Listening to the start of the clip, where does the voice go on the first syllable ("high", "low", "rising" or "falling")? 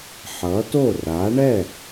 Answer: rising